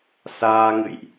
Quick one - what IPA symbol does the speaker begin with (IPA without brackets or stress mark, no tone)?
s